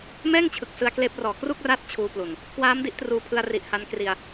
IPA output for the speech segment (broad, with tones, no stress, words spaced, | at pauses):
mɛː˥˩ŋt͡ɕʰɯ˨˩k̚ sɯ˧a̯kleː˦˥p̚rɔː˨˩ kru˥˩k̚raː˦˥t̚ t͡ɕʰuː˧plu˨˩n | kwaː˦˥mdi˦˥ʔtruː˧pʰɯ˧a̯ ri˨˩ʔha˧nkri˧a̯